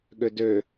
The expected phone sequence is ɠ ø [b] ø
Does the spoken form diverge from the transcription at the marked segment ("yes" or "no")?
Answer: yes